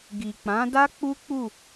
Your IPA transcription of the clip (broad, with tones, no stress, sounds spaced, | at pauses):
ɡ i˨ k͡p ã˨˦ d a˦ k͡p u˦ k͡p u˦˨